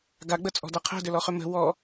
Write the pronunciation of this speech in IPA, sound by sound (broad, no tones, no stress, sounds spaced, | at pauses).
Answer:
ɡ a ɡ͡b ə t͡sʼ ɔ̤ d a qʰ ɛ̤ d ʏ l ɔ χ ʏ m ə̤ w ɔ